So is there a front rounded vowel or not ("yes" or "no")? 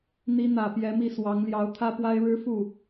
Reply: no